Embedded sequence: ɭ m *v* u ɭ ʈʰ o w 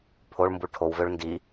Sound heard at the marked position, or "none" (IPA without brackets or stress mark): b